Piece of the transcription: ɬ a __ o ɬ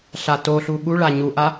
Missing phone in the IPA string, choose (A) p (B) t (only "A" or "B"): B